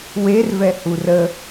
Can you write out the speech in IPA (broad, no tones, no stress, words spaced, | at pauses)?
wervɛhu rə